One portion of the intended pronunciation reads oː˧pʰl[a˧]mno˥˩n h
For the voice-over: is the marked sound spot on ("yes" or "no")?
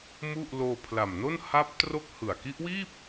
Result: no